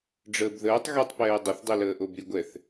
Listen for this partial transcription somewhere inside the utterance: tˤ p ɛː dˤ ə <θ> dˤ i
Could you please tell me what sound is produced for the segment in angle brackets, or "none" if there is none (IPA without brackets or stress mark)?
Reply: θ